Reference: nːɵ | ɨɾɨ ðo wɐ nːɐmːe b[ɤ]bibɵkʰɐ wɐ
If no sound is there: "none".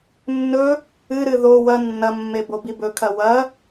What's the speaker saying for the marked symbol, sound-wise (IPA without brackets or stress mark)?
o